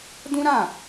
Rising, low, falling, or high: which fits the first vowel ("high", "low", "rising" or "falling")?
high